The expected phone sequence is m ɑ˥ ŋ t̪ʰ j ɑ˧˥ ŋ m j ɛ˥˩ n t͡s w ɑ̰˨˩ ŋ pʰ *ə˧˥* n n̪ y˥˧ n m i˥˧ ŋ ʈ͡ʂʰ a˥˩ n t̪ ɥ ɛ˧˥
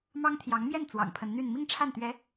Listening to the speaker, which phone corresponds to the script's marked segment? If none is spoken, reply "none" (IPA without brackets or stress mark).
ə˧˥